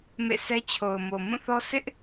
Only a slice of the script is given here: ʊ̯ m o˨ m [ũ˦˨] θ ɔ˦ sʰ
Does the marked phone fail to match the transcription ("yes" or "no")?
no